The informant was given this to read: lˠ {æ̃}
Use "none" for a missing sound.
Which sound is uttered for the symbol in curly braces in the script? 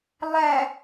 æ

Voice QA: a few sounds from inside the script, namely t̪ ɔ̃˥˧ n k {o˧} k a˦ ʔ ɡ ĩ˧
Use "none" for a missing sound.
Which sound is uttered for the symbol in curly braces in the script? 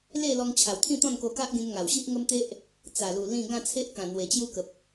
o˧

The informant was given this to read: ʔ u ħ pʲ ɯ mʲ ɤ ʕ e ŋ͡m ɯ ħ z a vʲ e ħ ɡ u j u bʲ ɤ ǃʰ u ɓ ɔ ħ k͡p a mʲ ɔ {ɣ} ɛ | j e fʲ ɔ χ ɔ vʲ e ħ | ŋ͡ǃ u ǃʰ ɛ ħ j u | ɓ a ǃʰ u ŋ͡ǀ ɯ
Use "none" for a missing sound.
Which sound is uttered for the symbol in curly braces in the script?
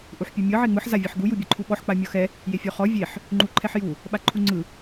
x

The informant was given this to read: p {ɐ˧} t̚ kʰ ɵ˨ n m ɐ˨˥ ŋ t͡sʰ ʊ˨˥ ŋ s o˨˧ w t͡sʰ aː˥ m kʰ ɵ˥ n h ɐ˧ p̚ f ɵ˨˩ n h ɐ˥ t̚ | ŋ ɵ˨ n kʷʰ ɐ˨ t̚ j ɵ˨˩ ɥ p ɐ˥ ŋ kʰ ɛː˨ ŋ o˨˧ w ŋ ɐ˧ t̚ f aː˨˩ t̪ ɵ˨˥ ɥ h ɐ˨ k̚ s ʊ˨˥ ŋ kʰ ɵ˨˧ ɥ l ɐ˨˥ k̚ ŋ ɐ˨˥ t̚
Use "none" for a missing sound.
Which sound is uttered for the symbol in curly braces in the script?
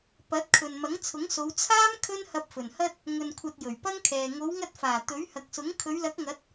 ɐ˨˥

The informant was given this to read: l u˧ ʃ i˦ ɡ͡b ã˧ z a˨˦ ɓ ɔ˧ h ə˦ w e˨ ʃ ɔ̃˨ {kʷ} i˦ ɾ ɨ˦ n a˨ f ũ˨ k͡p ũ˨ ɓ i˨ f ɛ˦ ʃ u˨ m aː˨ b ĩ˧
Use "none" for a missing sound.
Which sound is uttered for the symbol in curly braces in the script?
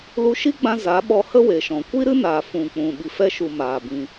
kʷ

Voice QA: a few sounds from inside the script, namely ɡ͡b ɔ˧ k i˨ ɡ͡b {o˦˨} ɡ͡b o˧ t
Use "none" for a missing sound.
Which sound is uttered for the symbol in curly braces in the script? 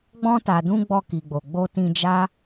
o˨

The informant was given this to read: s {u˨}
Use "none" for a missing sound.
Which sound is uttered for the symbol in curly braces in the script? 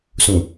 ũ˨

